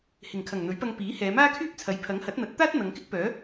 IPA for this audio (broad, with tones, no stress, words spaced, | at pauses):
hɪ˨˩ŋkʰɐ˨˩ŋ n̪ɵ˨˥ɥpɐ˧ŋ piː˨˥hɛː˨˧ maː˥kʰyː˥p̚t͡sʰɐ˨˥j pʰɐ˨˥ŋhɐ˨˥t̚n̪ɐ˨˥t̚t̪aː˥t̚ n̪ɐ˨˧ŋkɪ˥k̚pœː˨˥